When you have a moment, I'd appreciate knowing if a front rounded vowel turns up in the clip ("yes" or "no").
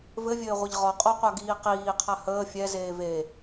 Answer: no